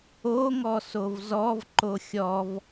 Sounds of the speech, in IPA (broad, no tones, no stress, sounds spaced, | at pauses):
o ŋ ɔ s o v z ɔ v ǃ o xʲ ɔ v